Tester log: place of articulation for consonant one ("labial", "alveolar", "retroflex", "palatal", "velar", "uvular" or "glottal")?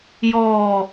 palatal